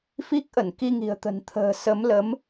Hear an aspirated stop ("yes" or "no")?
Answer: yes